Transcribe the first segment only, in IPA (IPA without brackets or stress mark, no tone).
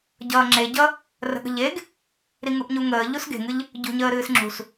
ɟ